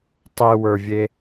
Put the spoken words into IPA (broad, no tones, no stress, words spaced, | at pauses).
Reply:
tˤewə˞vʲe